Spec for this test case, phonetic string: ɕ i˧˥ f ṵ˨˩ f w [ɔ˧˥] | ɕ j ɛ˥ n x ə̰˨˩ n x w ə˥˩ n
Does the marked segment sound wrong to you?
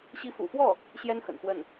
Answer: yes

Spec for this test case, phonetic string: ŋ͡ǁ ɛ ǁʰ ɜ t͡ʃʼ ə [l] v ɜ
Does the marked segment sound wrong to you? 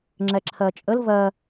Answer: no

